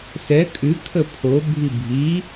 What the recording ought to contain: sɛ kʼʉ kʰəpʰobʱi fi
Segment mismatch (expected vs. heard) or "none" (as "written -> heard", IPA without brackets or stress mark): f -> bʱ